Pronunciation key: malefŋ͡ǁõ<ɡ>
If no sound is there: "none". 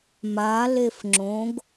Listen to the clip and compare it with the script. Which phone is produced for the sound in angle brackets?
ɡ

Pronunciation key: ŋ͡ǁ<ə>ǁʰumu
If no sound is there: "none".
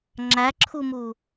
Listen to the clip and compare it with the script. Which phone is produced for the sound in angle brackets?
æ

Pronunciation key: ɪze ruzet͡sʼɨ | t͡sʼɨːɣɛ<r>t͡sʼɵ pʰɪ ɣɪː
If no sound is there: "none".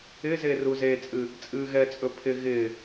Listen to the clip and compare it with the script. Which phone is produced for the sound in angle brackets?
none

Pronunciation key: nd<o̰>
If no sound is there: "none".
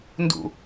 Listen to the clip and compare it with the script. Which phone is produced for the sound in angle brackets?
ṵ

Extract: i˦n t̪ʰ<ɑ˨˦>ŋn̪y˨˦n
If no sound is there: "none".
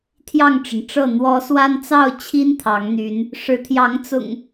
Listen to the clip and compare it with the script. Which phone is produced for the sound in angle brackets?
ɑ˨˦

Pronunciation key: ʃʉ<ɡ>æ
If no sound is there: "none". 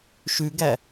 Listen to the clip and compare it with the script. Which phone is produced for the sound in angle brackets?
ɡ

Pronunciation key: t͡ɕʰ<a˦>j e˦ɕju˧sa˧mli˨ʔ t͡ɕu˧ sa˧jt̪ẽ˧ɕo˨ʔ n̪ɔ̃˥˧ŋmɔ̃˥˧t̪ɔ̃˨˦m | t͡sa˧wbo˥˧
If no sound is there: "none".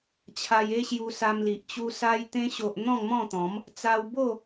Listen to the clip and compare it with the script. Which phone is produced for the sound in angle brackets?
a˧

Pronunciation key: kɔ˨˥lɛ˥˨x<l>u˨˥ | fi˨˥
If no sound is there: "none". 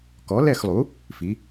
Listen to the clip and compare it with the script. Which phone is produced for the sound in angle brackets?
lˠ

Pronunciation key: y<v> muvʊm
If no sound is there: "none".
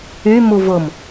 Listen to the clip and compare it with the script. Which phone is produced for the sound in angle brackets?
none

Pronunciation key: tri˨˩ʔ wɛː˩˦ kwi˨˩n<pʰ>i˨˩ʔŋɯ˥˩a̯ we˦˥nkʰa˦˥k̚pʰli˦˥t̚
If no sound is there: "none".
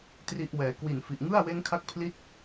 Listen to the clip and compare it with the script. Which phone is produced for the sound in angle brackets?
f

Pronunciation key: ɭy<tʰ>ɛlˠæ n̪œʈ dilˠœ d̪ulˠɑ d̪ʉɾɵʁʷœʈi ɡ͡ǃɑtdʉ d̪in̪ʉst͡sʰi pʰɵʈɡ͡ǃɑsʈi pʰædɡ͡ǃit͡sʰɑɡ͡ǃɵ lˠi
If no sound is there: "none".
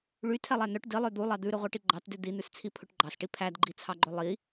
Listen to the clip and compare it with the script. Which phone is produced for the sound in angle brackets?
tʰ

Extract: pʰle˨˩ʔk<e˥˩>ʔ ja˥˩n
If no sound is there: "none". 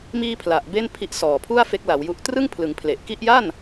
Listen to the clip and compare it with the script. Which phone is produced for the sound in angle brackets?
i˥˩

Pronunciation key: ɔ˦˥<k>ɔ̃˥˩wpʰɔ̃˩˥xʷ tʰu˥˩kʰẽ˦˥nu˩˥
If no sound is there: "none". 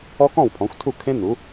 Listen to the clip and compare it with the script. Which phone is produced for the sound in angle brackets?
k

